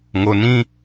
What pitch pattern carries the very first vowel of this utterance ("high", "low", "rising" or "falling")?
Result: low